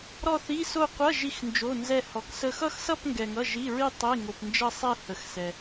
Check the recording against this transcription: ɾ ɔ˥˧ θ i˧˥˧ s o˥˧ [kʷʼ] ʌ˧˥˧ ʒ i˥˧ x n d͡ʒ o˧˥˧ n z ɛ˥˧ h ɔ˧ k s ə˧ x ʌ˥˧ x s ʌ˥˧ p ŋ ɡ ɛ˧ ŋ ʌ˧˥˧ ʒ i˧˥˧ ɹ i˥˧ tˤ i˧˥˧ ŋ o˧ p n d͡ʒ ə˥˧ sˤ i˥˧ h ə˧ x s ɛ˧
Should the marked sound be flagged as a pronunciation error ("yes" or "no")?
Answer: yes